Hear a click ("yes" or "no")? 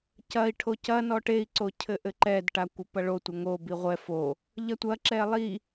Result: yes